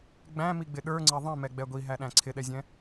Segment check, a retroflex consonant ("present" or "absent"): absent